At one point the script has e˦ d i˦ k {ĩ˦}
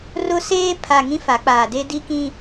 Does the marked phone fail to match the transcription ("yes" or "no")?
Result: no